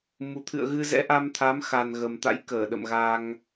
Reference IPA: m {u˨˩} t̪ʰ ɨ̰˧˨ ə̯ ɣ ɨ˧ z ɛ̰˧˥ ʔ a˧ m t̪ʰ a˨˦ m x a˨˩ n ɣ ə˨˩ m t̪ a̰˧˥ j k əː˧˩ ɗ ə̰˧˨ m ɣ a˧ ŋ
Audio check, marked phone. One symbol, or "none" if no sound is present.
u˨˩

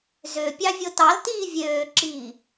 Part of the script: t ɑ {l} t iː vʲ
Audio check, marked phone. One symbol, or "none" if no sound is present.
l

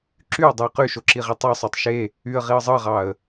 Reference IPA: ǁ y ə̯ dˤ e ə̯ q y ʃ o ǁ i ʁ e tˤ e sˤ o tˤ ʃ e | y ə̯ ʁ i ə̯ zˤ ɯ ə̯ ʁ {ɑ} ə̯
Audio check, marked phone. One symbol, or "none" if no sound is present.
ɑ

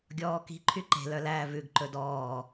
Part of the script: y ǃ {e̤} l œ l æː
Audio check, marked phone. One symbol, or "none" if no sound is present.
e̤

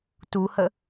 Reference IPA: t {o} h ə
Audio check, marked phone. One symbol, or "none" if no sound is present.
u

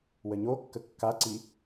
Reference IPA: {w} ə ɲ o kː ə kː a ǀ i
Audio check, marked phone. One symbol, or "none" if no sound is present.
w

